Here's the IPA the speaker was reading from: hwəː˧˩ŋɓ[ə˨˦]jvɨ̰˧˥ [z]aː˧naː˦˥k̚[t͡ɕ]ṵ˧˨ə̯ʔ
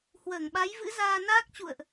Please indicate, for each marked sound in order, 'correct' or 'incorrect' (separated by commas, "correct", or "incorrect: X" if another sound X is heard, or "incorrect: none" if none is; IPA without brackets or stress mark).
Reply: incorrect: a˨˦, correct, correct